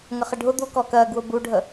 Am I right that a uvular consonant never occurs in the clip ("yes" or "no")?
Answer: no